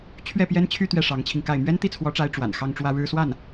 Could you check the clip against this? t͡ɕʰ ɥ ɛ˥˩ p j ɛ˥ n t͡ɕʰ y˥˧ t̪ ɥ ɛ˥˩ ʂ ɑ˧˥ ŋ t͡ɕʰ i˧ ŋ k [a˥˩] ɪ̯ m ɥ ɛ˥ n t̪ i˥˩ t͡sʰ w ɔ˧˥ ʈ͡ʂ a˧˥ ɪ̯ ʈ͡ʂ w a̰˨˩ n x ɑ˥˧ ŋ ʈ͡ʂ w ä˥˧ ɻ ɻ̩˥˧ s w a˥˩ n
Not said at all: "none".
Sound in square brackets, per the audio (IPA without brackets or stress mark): a˥˩